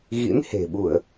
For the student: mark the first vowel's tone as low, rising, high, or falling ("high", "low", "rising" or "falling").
rising